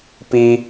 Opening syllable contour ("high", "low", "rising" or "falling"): high